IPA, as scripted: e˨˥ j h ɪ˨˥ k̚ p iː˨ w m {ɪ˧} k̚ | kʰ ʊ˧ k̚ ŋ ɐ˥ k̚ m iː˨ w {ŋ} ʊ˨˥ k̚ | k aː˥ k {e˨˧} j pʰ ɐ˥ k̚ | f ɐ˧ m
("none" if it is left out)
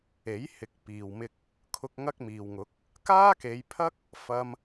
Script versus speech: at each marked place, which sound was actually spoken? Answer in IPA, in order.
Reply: ɪ˧, ŋ, e˨˧

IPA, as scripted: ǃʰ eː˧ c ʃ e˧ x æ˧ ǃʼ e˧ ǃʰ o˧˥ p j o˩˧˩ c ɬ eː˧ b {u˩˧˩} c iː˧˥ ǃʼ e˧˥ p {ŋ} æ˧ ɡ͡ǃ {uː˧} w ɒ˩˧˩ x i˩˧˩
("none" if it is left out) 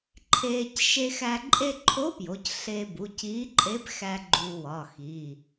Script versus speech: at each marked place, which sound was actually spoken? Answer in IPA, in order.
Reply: u˩˧˩, x, uː˧

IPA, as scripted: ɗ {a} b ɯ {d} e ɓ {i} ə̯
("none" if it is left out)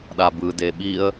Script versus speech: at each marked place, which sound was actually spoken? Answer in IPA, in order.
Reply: a, d, i

